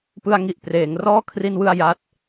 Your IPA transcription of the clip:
p ɯ˧ a̯ ŋ i˨˩ ʔ p r eː˩˦ ŋ r ɔː˥˩ kʰ r i˧ n w ɯ˧ a̯ j a˦˥ t̚

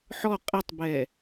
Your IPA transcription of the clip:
ħ ɔ qʼ ɛ tˤ b ɛ

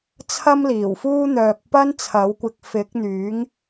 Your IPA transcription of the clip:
t͡sʰ ɐ˥ m l iː˨˩ w f uː˥ n̪ œː˨ k̚ p ɐ˥ n t͡sʰ ɐ˨˥ w kʷ ɪ˧ k̚ f ɪ˨˥ k̚ n̪ yː˨˥ ŋ

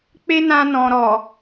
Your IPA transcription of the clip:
k͡p e˦ n ã˧ n ɔ̃˨ ɾ ɔ˨

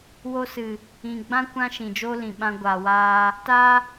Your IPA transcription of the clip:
w o˧ s ɨ˨ | ĩ˨ ɡ͡b ã˦ kʷ ã˦ ʃ ĩ˨ d͡ʒ o˦ l ĩ˨ ɓ ã˧ ɡʷ a˨ w aː˧ | t a˦

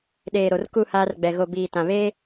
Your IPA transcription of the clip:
ɗ eː˨ ɾ o˨ r k u˦˨ h aː˦ r ɡ͡b ɛ˨ ɣ o˨ b iː˨ t ã˨ β eː˦

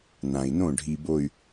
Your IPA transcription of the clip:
n ã˨ i̯ n õ˦˨ ɖʱ i˨ b o˨ y̯

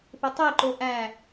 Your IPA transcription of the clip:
p e tˤ e ǃ o ʔ æ

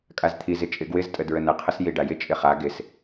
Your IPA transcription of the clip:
kʼ a z t̪ʰ i z ɪ t͡ʃʼ ɪ ɡ w ɪ z tʼ ə d ɹ ə n ə qʰ ə s j i ɖ a j ɪ t͡ʃʼ ɪ χ a ɡ ɪ s

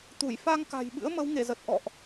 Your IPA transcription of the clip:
t̪ u˧˩ j f a˧ ŋ k a̤˨˩ j ɓ ɨ̰˧˥ ə̯ m ə˨˦ w ŋ e˧˩ z ə˨˩ t̚ ʔ ɔ̰˧˨ ʔ

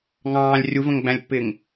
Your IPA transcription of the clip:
ŋ ɑ̃ː lʲ rʲ u v ə̃ ŋ ɡ͡b æ̃ lʲ pː ɪː ŋ

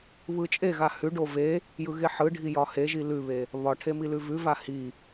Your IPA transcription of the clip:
β ɯ t͡ʃʼ e ɣ a h ʉ ɖ o v e | j ɯ ɣ e ħ ɯ ɖʱ i j ɒ h e ʒ i l ʉ β e | β ɒ ʈʰ e m i l ʉ v ʉ v a h i

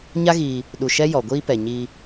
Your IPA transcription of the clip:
ɲ a˦ ɣ iː˧ | ɗ u˧ ʃ ɛ˦ j ɔ˨ ɡʷ iː˧ p ɛ˨ ɲ i˧

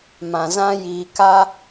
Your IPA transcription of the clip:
m ã˨ z ã˦ j iː˧ k a˦

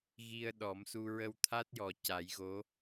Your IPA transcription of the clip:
ɣ i˧ ə̯ ɗ ɔ˨˩˦ m s u˧ ɹ ə˧ w t̪ʰ a˦˥ t̚ j ɔ˨˩ c a˨˩˦ j ɣ o˧˥

